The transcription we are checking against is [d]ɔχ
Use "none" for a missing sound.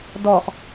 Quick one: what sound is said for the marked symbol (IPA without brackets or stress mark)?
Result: d